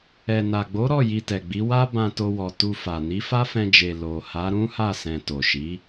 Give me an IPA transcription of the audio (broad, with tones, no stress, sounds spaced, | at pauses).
ɛ˨ n a˨ ɡ͡b o˨˦ ɾ ɔ˦˨ j i˧ t ɛ˨ ɡ͡b i˨˦ w a˦ b ã˧ t o˧ w ɔ˨ t u˧ f a˨ n i˨˦ f a˦ f ɛ̃˧ d͡ʒ e˨ l o˨ h a˨˦ ɾ ũ˦ h a˦˨ s ɛ̃˨ t o˨ ʃ i˨˦